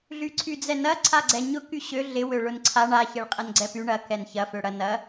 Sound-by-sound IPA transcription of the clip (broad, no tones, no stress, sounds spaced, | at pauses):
ɮ y ǀʰ y d͡z ɛ n ɐ ǀʰ a ɡ͡ǀ ɛ ɲ ʊ k y ɕ ø ɮ ɪ w ø ɭ ʊ n ǀʰ a ɳ a ç ɛ ɭ qʼ ɐ n ɡ͡ǀ ɛ p y ɳ ɐ k ɛ n ç ɐ f ø ɽ ɐ n ɐ